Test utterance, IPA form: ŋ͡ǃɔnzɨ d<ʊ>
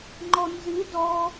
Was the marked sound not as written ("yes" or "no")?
yes